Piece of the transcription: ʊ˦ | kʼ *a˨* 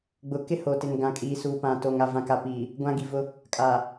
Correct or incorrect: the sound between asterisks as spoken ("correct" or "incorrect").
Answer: correct